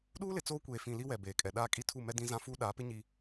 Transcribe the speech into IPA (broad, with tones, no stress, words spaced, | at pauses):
ɗuː˦lɪ˨ t͡soː˦kʷeː˨fĩ˨ li˦wɛ˨ beː˨kʼɛ˨ ɗaː˦kʼi˦ tʰu˦˨mɛ˦dĩ˦zã˦ fuː˦ɗaː˨˦pɪ˦ ɲi˨